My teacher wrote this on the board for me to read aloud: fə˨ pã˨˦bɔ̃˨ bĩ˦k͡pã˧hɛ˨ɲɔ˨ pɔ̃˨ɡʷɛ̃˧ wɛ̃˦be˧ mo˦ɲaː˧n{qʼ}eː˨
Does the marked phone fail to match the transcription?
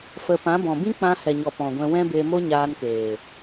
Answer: yes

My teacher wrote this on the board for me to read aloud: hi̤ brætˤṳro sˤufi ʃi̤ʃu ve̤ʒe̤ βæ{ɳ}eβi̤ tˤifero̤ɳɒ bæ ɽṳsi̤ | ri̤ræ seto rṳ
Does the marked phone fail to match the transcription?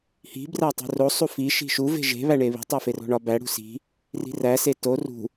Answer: no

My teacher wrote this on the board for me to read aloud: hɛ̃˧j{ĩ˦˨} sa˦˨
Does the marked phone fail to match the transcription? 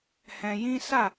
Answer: yes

